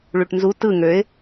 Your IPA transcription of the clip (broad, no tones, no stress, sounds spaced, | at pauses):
ɭ y ʈ n z u t ɯ ŋ ø ɪ̯